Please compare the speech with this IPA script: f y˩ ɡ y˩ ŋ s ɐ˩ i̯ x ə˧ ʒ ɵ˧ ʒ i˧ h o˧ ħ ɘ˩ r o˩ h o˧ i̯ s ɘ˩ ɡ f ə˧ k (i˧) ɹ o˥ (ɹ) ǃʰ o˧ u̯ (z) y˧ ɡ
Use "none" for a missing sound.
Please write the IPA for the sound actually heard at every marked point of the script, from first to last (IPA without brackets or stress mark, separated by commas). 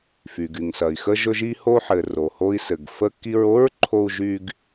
i˧, ɹ, ʒ